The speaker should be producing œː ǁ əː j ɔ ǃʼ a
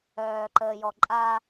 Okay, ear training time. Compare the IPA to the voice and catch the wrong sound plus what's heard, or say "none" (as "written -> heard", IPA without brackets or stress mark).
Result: ǁ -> ǃ